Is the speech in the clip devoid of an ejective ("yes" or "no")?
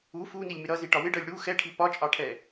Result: no